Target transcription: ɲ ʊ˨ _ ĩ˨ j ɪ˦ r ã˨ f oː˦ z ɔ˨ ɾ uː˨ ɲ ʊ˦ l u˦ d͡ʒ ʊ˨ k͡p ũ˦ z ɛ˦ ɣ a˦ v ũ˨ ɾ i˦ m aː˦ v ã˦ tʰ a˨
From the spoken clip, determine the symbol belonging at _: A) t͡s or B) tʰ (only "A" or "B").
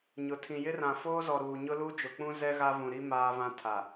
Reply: B